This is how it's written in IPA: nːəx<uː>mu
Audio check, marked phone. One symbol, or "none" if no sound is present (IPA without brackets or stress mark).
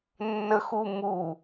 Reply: u